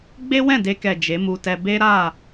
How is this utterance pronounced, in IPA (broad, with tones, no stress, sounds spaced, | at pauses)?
ɡ͡b e˦ w ɛ̃˦˨ d e˧ k ɛ˨ d͡ʒ e˨˦ m u˧ t ɛ˧ b e˦ ɾ a˦˨